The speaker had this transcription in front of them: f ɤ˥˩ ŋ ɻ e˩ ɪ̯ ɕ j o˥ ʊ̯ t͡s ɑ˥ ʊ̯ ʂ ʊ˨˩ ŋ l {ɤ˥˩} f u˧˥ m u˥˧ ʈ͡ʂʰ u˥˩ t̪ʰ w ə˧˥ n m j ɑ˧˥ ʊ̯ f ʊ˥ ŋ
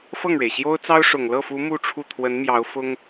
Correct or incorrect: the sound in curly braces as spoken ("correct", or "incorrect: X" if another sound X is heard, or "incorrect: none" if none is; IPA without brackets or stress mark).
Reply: correct